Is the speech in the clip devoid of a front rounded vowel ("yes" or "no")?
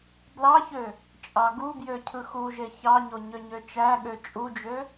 no